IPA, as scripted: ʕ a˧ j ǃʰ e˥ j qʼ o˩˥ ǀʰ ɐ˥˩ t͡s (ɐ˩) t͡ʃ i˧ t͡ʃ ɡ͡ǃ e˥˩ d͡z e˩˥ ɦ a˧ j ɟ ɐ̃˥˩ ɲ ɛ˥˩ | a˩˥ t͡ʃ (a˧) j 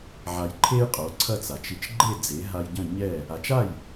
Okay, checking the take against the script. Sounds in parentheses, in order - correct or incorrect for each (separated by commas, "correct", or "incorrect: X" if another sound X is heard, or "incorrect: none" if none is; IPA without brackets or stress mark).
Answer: incorrect: a˩, incorrect: a˥˩